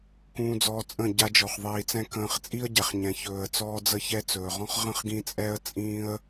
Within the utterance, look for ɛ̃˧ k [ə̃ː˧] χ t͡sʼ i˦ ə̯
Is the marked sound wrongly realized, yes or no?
no